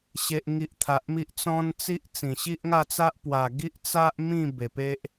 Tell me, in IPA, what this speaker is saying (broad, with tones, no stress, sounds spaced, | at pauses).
ɕ e˨ ʔ ŋ i˨ ʔ t̪ʰ a˨ ʔ m i˦ ʔ t͡s ɔ̃˦ n t͡s i˦ ʔ t͡s ĩ˨˩ ɕ i˦ ʔ ŋ a˥˧ t͡s a˦ ʔ p w a˨˩ ɡ i˦ ʔ t͡s a˦ ʔ m ĩ˥˧ b e˨˩ p e˦ ʔ